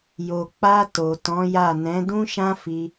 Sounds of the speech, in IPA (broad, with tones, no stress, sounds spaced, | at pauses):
j o˨ k͡p a˧ t o˨ t ɔ̃˨˦ j a˦˨ n ɛ̃˨˦ d ũ˦ ʃ ã˦ f i˧